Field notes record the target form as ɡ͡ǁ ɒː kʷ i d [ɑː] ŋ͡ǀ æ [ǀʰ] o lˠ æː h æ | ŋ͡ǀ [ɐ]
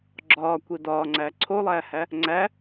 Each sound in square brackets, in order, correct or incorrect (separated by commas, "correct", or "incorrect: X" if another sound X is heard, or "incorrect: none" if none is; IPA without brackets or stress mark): incorrect: ɒː, correct, incorrect: æ